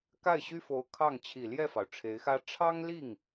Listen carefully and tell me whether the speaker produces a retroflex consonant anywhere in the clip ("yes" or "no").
yes